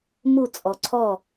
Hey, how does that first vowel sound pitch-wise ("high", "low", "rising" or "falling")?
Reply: falling